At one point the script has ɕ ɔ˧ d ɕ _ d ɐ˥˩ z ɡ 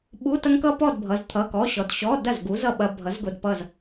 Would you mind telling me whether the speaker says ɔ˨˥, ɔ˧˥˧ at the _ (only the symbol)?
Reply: ɔ˧˥˧